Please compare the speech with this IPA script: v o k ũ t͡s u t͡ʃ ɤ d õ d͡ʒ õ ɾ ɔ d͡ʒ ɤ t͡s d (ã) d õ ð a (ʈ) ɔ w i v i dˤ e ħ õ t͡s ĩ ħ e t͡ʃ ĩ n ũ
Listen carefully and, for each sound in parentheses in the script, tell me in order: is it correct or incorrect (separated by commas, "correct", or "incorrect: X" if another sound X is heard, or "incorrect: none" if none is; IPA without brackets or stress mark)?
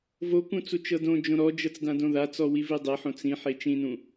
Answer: correct, incorrect: t͡s